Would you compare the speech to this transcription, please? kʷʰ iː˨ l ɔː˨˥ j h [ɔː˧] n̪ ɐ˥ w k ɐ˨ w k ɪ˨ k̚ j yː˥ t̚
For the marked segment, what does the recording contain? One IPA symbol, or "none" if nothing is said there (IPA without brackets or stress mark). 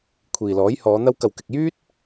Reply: ɔː˨˧